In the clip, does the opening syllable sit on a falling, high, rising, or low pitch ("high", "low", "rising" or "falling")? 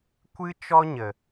high